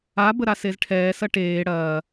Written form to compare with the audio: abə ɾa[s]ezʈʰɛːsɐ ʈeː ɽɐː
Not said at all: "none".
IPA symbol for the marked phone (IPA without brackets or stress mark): s